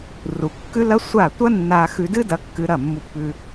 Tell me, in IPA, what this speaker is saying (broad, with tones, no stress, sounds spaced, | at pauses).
r u˨ kː ʉ˦ l ɐ˦ sʷ a˦˨ tʷ ɐ˦ nː a˧ x ʉ˧ d ɨ˦ d ɐ˧ kː ɨ˧ ɾ ɐ˦˨ mː u˧ pː ʉ˧